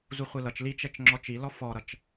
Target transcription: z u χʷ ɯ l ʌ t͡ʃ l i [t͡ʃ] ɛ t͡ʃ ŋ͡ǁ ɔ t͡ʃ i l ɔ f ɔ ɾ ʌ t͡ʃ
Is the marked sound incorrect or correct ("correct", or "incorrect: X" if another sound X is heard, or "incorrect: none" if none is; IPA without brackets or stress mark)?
correct